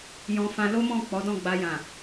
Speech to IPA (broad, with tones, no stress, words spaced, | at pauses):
jɔ̃˧ fã˧lo˦mɔ̃˦˨ k͡pɔ˨˦dɔ̃˦˨ɡ͡ba˧jã˨